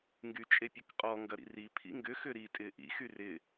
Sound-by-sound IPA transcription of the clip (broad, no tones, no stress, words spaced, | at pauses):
ŋɡyt͡ʃʼepʲəkqʼɔ ŋɡɐɾḭri pʰḭŋɡʏ xʏɾi tʼɪːʔḭ xyrɪ